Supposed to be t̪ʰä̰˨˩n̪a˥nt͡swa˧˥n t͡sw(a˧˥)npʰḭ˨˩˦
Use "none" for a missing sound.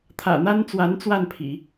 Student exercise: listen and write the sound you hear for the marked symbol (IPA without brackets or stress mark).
a˥˩